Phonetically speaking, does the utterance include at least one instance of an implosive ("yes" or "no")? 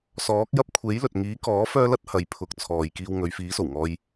no